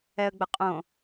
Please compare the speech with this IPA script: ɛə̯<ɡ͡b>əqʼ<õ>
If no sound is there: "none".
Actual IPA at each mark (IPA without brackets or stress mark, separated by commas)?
ɡ͡b, õ